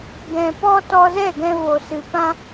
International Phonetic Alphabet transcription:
ɡ ɛ̃˨ p ɔ˧ t ɔ˧ z ɛ˦˨ ɡ ɛ̃˧ v o˨ s ɨ˨ p ã˧

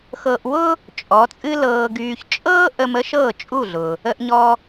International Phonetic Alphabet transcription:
x ɤ˧ ʔ w ʊ˥ | t͡ʃʼ ɔ˩˥ t͡sʼ ɨ˥ l ɤː˧ ɡ yː˧ ç t͡ʃʼ ɤː˥ ʔ ə˧ m ə˥ ʃ ɤː˥˩ t͡ʃʼ u˥˩ ɮ ʊ˩ | ə˧ ʔ ɲ ɔ˧

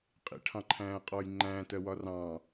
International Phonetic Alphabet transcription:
qʼ ḭ ʈʰ ɑ̃ ǃʰ æ̃ː qʼ ɔː j ŋ͡ǃ æ̃ː t ɜ w ɒ r ɑ̃ː

